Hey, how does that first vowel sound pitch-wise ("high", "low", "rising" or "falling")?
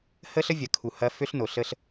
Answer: high